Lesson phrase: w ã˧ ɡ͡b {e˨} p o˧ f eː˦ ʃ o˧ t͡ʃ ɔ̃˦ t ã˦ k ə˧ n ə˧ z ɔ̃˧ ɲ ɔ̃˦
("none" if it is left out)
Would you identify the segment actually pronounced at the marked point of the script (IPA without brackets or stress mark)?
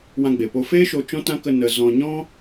e˨